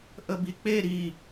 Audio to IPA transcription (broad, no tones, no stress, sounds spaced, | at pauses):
ʔ ə b i k͡p e ɾ i